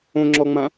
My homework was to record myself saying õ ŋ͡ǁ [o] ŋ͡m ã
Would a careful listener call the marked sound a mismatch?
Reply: yes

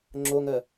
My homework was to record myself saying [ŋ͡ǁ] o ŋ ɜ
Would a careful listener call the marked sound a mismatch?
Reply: no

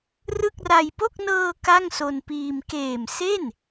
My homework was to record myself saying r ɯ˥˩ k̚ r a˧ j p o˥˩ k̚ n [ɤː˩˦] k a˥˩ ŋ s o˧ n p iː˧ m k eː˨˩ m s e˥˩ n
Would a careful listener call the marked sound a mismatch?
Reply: yes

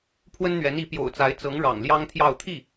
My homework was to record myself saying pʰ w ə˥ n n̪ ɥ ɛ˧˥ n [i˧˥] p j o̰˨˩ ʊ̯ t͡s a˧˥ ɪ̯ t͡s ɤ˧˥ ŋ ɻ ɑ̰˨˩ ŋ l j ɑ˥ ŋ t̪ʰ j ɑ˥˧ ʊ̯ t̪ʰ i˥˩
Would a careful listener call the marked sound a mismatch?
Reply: no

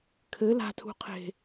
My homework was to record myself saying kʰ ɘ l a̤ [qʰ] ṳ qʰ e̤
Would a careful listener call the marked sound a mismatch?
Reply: yes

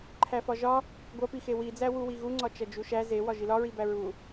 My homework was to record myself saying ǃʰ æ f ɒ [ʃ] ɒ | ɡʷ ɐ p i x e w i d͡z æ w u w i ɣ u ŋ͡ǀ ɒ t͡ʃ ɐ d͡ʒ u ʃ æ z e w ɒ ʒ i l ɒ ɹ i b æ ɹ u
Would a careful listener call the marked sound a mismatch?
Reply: yes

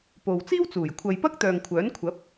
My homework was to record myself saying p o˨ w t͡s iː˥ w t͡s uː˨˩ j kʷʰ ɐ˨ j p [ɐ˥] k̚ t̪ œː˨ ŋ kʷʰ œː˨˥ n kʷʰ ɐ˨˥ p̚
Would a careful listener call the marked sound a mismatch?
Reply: no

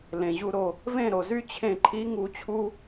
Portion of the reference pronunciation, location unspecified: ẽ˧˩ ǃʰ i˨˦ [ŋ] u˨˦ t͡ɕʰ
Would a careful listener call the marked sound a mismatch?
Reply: no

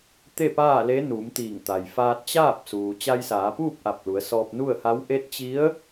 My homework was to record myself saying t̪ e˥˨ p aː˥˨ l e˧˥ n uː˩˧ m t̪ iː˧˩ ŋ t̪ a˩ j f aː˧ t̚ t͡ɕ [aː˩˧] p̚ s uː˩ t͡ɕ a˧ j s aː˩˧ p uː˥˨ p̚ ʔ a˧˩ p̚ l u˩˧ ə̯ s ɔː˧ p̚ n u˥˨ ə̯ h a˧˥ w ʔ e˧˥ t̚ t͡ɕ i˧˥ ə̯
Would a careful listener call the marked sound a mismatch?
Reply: yes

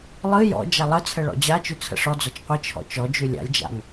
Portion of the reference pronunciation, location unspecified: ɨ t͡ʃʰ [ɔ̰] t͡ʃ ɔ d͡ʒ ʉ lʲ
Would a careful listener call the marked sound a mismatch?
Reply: no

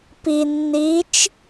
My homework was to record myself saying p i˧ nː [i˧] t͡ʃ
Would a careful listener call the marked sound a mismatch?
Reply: yes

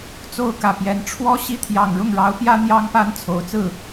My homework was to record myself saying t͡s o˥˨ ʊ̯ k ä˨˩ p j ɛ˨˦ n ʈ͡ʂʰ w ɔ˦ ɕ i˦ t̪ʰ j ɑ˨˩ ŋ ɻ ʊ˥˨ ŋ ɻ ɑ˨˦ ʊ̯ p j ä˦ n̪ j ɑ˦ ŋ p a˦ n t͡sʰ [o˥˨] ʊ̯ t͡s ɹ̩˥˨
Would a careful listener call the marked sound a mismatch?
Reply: yes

